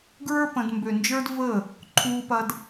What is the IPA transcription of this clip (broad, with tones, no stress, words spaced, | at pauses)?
ɡɹə˞˦ pə̃˧d mbø˨nd͡ʒə˞˧d və˦˨ | ǃʰuː˧pɐ˧d